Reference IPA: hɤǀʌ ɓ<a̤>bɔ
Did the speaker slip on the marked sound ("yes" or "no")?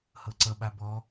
yes